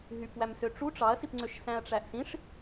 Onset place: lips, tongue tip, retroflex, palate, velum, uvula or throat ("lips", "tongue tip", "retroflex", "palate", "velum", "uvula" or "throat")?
throat